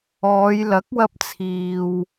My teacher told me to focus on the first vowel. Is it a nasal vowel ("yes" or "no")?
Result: no